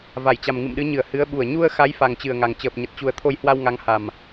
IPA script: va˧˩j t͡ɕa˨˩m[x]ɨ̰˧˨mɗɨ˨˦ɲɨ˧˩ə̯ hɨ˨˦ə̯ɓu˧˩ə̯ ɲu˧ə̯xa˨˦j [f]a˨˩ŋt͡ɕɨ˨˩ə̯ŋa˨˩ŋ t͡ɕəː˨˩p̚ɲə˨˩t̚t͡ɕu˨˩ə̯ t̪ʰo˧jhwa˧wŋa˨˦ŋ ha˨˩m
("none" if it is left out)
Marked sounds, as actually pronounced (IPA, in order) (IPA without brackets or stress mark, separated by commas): ŋ, f